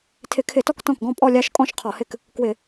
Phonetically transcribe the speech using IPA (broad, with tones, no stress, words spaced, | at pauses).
tʰɪ˧˩˧kʰɪ˧˩˧tɔ˥˩k tɔ̃˥˩kɡɔ̃˥˧ pʼɔ˥˧ lʲa˥˧ʃ kʼɔ̃˥˧ʃ qʰɔ˧˩˧hɪ˥˩k | kwɪ˧˩˧